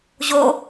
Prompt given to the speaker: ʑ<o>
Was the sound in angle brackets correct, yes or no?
yes